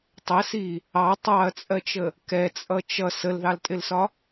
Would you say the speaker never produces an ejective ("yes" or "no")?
no